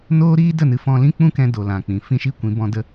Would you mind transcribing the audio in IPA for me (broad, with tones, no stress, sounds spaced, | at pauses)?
n oː˦ ɾ iː˦ d ə˦˨ n ɨ˧ f ɔ̃˧ l ĩ˦ k͡p ũ˦ k ɛ̃˧ d o˨ l ã˨ k͡p ĩ˨ f ĩ˦ ʃ i˦ kʷ ĩ˨˦ b ɔ̃˧ d ə˧